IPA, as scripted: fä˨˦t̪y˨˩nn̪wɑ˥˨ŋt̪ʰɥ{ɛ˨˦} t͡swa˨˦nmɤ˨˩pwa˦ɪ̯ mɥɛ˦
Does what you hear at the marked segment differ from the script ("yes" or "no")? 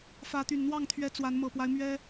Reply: no